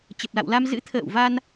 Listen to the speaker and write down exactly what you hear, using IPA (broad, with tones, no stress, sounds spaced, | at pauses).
t͡ɕ ə˨˩ p̚ l a̰˧˨ w l a˧ m z ɨ̰˧˥ t̪ʰ ə̰ː˧˨ w v a˧ n